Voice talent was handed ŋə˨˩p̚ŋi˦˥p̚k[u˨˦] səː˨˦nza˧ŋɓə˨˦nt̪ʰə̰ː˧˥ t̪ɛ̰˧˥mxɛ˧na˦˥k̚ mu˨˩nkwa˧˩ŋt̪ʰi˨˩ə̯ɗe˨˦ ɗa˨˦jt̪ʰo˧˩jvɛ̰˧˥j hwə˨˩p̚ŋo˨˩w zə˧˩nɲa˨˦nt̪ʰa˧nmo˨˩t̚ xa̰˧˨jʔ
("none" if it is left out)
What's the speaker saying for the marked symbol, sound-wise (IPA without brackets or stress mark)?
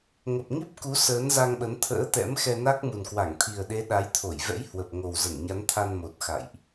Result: u˨˦